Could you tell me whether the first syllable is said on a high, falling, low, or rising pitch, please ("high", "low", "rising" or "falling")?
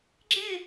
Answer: falling